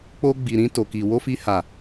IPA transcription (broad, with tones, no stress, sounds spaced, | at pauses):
k͡p o˧ ɡ͡b i˨ ɾ ĩ˧ t o˨ k i˨ w o˧ f i˧ h a˨